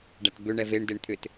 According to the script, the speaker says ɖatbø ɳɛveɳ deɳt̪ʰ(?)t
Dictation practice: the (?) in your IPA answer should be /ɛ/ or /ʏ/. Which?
ʏ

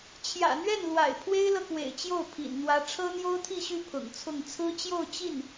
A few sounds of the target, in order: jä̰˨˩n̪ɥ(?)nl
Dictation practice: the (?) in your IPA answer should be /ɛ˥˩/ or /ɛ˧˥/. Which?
ɛ˥˩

